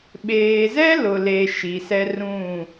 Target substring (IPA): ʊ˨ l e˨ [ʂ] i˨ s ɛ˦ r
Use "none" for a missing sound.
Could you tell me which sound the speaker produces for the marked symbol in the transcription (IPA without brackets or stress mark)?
ʃ